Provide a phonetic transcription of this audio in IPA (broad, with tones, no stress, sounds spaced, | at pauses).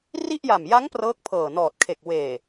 r i˥˩ ʔ j a˨˩ m j a˦˥ ŋ p r ɤː˦˥ k̚ pʰ ɤː˨˩ n ɔː˨˩ t̚ kʰ e˨˩ k̚ w eː˨˩